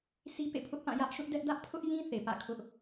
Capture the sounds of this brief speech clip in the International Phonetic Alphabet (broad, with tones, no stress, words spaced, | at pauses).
si˦pḛ˦˨pʰʊ˦ʔpã˦˨ jä˦ʔʃʊ˦ʔdɛ˦ʔ dä˦ʔpʰʊ˦ʔjĩ˦ θe˨pä̰˦˨kʰʊ˦ʔ